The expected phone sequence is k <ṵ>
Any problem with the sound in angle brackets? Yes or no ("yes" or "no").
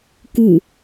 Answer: yes